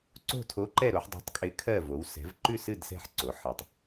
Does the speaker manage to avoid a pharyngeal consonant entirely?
no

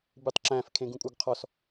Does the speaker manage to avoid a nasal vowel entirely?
no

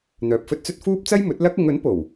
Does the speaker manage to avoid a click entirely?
yes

